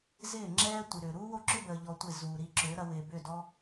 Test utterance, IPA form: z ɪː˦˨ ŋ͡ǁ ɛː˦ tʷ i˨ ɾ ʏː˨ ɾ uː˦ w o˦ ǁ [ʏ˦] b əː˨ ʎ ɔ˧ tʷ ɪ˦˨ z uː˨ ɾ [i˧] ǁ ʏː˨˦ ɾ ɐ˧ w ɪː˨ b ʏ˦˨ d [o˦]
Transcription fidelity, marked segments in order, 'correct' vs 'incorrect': correct, correct, incorrect

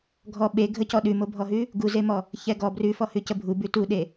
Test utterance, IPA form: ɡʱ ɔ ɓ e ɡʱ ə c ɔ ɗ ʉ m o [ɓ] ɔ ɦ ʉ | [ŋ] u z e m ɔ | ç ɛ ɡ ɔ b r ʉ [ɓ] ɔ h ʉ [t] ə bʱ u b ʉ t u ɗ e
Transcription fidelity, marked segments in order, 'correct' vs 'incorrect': incorrect, incorrect, incorrect, incorrect

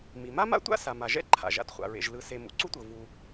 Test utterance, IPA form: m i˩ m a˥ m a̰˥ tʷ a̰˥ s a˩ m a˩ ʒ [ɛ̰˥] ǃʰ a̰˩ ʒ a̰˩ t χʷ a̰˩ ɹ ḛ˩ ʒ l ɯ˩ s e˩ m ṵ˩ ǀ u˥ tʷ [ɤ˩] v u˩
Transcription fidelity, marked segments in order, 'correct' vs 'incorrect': correct, correct

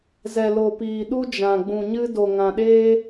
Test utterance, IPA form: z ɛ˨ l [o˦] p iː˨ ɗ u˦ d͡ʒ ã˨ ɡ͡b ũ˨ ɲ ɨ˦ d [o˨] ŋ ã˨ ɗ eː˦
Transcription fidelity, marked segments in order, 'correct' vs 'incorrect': incorrect, correct

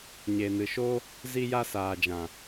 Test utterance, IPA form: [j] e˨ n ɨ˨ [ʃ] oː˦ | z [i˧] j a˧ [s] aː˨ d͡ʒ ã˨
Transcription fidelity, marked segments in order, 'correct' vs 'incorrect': incorrect, correct, correct, correct

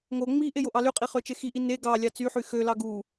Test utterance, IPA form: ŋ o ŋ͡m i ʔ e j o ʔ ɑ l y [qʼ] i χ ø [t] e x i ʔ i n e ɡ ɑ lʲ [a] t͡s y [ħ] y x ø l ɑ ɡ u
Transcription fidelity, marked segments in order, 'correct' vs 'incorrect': correct, incorrect, incorrect, correct

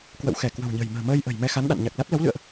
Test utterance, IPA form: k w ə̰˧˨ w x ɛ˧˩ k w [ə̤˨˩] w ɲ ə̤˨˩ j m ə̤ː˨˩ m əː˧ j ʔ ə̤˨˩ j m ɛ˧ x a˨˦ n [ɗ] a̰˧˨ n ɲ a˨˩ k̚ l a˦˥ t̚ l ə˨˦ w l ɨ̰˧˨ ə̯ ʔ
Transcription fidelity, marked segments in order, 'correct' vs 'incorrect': correct, correct

